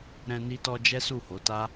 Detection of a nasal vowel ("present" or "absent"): present